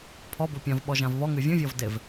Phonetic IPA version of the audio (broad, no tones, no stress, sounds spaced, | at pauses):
pʰ ɔ b o pʲ ã v ɓ ɔ ʒ ã v β ɔ ŋ ɨ vʲ ũ vʲ ɔ v d e v